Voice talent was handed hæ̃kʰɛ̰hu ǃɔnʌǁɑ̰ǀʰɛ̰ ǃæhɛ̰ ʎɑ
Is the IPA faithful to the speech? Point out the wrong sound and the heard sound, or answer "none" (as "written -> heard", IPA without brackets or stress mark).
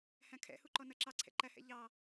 ɑ̰ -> ɑ